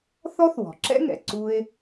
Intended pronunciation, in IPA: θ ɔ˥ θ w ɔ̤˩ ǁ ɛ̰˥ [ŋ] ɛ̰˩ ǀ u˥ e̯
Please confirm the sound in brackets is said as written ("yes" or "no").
yes